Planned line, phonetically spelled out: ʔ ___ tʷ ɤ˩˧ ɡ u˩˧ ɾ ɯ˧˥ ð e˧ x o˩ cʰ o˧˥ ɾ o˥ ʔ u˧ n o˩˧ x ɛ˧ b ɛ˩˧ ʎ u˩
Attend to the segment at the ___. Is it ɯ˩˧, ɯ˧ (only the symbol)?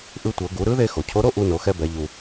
ɯ˧